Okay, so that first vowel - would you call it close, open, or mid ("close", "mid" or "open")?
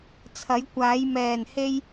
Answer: open